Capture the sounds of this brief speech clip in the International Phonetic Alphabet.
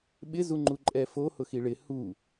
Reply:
ɓ ɪ z u ŋ͡ǃ u ǃʼ ɛ f o h ʊ x i ɭ ɪ h u

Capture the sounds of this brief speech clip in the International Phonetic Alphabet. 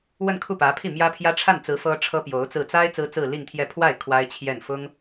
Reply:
w ə˥˧ n kʰ u˥˩ p ä˧˥ pʰ i˥˩ m j ä˥ pʰ j ä˥ ʈ͡ʂʰ a˥˩ n t͡s ɹ̩˧˥ f ɤ˥ ʈ͡ʂʰ ɤ˥ p j o˧˥ ʊ̯ t͡s ɹ̩˥˩ t͡s a˥ ɪ̯ t͡s ɹ̩˥ t͡s ɹ̩˥˧ l i˥˧ ŋ t̪ʰ j ɛ˥˧ pʰ w a˥˩ ɪ̯ kʰ w a˥ ɪ̯ t͡ɕʰ j ɛ˥˩ n f ʊ˥ ŋ

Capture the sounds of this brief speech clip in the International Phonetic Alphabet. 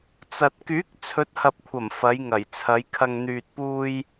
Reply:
t͡s ɐ˨ t̚ k yː˨˥ k̚ t͡sʰ ɵ˨˥ t̚ h ɐ˨ p̚ kʷʰ ɐ˨˩ m f ɐ˨˧ j ŋ ɐ˨˩ j t͡sʰ ɐ˨˧ j kʰ ɐ˧ ŋ n̪ yː˨ t̚ p uː˧ j

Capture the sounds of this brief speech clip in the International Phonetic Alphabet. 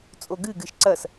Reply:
t͡sʼ o ɡ ɨ ɡ ɨ ʃ ǀ ɐ s

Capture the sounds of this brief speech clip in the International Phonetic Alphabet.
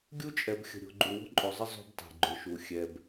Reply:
ɡʲ u˦ t͡ʃʼ ɛ˨ b xʲ ə̤˨ ɾʲ o̤˨ ɡ͡ǃ u˨ w o̤˦ ǃʼ o˨ zˤ ə˦ zˤ o̤˦ b tˤ e̤˨ ɡ͡ǃ ʏ˨ ʃ u˨ xʲ ɛ˨ b

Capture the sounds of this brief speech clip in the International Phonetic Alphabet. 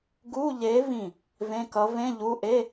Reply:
ɡ u˧˥˧ ʎ e˨˥ v ĩ˧˩ | v ẽ˧˥˧ k ʌ˨˥ v ẽ˧˥˧ ʎ u˧˥˧ ʔ e˧˥˧

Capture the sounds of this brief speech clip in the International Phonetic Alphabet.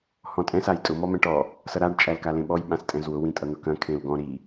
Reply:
h ɔ̃ tʼ ɛ̃ s a j tʼ ʊ m ɔ m ɛ̃ ʈ ɔ | s ʌ ɾ a ɖ t͡ʃʼ æ l k a l ẽ ɓ ɔ j ɓ ã s tʼ ɛ̃ z w ʊ w ĩ tʼ ʌ n̪ ʊ k ɐ̃ kʰ ẽ l ɡ ɔ̃ ɾ i

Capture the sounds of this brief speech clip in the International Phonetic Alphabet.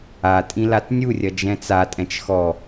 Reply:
a tʼ ĩ l a t nʲ u rʲ ɐ d͡ʒ ɛ̃ t͡s a tʼ ɛ̃ t͡ʃ x ɔ

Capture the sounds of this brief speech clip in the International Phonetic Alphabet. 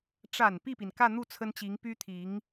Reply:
ʈ͡ʂ a˨˩ n p i˥˩ p i˩ n k ä˥˧ n̪ u˥˩ t͡sʰ ə˥ n t͡ɕ i˧˥ ŋ p y˥ t̪ʰ i˧˥ ŋ

